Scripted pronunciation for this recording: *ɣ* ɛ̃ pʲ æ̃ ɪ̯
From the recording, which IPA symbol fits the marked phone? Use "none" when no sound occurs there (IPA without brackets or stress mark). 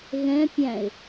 ɣ